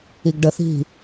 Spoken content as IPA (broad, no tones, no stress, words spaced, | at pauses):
iɡɖəθi̤